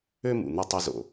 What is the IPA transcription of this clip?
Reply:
ø˦ m ṵ˨ n̪ o˥ tˤ u˦ z o̰˨

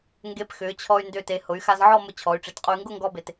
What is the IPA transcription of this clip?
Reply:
ŋ ɡ e˧˩ p x ʏː˩˧ t͡ɕʰ ɔ˧ y̯ n d ʏː˧˩ t e˩˧ h ʊ˩˧ y̯ x a˧ z ʕ ɔ˥˧ m ʊ˧ t͡ɕʰ ɔ˩˧ y̯ ʈ͡ʂ e˩˧ t qʼ u˧ y̯ ŋ ɡ ʊ˥˧ ŋ ɡ ɔ˥ b e˧ t

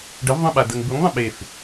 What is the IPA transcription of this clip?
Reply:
ɖ ə v ðˤ ə̃ ɓ a d ə ŋ b u ŋ ðˤ ə̃ ɓ e f

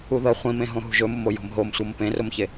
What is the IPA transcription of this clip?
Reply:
u ð ɤ χʷ ĩ m ẽ ɦ õ ɦ ṳ ʒ ɵ m ʊ m o j o̤ m ɦ o m sʷ ɤ m p ẽ r ʊ m ç e

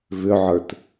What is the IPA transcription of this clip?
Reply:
v ʏ ʕ ə˞ t

